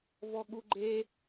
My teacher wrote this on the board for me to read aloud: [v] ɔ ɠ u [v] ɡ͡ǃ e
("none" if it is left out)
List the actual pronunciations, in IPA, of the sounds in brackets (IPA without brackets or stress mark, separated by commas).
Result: v, none